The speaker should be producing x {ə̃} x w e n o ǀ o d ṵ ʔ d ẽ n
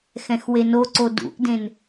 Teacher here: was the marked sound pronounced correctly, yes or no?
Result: no